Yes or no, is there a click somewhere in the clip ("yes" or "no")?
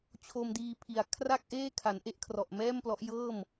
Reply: no